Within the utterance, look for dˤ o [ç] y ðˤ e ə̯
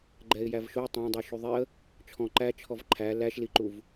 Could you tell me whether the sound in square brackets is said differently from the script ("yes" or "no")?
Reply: yes